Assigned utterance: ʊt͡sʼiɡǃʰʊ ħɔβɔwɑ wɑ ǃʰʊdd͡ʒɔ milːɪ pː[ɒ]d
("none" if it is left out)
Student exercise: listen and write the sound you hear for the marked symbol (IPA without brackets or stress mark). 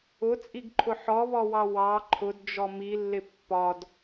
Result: ɒ